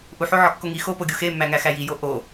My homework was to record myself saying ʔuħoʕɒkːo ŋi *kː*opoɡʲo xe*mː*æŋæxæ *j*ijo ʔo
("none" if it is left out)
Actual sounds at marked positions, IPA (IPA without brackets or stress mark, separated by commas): x, mː, j